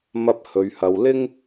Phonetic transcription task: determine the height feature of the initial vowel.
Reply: low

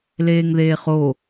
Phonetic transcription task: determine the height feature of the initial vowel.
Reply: mid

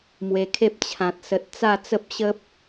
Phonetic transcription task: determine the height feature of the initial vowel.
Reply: mid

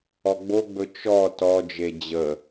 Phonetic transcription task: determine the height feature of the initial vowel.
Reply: mid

